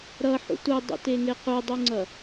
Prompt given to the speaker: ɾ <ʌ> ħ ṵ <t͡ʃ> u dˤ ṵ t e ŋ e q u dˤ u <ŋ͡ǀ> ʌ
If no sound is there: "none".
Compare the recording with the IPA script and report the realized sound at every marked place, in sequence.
ʌ, t, ŋ͡ǀ

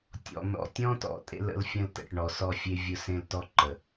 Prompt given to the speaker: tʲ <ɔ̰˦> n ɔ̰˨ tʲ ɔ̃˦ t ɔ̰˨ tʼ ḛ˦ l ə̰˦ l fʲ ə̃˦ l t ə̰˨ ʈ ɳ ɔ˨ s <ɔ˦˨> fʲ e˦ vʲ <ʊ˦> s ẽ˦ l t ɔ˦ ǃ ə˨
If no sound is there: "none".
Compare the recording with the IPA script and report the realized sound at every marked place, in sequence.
ɔ̰˨, ɔ˦˨, ʊ˦

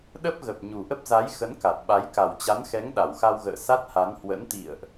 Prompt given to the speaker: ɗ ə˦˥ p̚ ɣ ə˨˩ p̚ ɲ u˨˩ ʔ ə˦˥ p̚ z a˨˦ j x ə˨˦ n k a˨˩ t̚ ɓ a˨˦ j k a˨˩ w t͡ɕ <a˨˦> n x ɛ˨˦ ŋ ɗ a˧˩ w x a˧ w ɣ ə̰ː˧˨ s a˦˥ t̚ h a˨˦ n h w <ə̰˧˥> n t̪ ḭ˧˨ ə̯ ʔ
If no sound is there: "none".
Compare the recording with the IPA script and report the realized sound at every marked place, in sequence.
a˨˦, ə̰˧˥

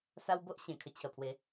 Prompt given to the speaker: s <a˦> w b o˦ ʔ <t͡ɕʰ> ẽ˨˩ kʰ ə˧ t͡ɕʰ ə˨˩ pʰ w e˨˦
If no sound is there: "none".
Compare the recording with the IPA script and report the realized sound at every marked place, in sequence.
a˦, ɕ

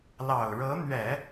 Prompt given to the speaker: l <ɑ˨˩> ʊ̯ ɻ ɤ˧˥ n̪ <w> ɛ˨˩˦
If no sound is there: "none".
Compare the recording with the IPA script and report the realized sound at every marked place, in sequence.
ɑ˨˩, ɥ

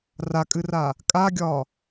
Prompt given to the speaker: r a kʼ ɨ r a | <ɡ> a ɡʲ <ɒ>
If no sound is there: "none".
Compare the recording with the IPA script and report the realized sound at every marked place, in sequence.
kʼ, ɒ

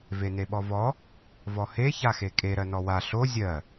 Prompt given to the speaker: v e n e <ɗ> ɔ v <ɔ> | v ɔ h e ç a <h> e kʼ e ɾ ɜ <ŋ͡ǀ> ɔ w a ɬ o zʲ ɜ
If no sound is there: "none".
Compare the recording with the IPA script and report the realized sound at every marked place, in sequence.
ɓ, ɔ, x, n

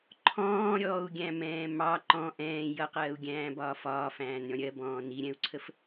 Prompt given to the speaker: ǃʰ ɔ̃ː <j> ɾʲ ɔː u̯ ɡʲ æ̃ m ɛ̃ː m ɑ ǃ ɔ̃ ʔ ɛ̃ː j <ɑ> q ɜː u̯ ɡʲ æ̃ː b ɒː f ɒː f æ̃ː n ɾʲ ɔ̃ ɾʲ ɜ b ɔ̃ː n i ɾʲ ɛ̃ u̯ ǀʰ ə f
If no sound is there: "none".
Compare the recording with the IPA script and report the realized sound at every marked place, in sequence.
none, ʌ

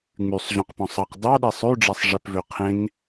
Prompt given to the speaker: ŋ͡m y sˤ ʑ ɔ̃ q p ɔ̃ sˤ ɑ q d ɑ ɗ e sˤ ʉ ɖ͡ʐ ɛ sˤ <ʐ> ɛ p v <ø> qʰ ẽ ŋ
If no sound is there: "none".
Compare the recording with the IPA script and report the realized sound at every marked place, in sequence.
ʐ, ø

